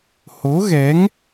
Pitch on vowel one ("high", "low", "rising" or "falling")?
rising